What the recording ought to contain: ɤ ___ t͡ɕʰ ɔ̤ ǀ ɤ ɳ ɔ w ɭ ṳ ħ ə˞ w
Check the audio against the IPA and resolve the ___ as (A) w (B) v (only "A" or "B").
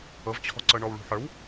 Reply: B